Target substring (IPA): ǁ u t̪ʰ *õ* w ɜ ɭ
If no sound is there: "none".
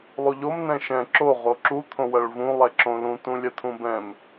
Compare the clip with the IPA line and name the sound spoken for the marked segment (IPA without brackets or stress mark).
õ